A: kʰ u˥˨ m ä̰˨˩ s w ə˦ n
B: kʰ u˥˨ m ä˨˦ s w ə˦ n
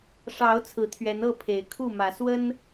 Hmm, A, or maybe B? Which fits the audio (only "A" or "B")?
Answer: B